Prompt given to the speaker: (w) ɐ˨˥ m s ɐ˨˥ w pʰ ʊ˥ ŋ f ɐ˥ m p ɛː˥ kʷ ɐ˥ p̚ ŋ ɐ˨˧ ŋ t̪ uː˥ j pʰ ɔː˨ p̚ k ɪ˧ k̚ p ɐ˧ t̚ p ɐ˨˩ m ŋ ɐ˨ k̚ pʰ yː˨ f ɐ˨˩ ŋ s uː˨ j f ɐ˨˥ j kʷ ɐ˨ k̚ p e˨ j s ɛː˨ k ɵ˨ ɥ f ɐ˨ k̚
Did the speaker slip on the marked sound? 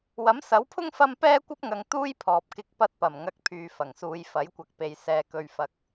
no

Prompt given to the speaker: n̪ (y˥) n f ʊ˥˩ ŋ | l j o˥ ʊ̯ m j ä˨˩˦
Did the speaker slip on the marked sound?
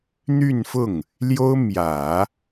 yes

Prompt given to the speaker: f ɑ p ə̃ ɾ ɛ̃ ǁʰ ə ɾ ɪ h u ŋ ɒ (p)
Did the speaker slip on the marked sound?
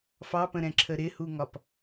no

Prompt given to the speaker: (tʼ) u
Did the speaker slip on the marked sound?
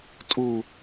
no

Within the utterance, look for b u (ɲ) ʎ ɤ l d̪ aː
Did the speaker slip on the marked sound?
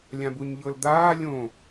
no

